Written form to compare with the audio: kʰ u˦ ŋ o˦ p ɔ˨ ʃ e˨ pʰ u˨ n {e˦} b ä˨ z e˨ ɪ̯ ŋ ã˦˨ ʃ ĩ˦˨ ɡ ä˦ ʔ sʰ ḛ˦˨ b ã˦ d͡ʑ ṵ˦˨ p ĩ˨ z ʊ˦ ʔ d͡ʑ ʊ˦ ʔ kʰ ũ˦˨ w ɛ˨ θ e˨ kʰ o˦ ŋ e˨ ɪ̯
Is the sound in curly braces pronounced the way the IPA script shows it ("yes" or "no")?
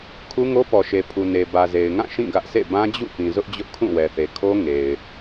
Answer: no